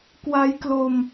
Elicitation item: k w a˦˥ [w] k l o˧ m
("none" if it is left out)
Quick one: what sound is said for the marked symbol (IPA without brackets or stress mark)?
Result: j